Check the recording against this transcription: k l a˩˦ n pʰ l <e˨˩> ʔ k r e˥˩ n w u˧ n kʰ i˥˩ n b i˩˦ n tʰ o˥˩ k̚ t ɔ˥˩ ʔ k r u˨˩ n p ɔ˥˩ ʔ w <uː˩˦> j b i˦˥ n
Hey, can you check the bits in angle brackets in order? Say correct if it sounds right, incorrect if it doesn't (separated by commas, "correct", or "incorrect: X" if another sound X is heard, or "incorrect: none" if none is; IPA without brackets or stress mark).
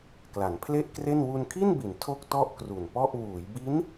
incorrect: e˥˩, correct